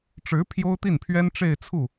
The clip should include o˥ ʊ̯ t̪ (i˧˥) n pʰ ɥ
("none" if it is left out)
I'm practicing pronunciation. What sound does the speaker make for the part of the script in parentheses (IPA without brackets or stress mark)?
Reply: i˥˩